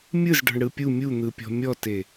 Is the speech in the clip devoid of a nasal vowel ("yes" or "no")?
yes